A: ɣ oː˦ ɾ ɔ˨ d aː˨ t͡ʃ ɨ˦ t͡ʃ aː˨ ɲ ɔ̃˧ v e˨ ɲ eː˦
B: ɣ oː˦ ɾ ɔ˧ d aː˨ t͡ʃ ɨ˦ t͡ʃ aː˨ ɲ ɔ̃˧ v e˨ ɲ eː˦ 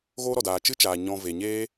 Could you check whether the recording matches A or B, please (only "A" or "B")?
A